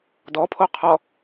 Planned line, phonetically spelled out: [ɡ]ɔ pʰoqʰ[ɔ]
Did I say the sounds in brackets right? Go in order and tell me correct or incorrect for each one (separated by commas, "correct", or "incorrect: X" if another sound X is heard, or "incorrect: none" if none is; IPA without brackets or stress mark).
incorrect: d, correct